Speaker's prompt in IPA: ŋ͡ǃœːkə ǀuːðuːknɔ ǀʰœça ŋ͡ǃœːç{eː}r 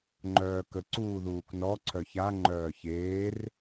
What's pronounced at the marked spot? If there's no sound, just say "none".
eː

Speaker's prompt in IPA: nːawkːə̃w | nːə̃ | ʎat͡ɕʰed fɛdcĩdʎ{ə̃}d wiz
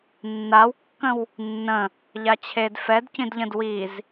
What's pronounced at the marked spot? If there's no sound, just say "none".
ə̃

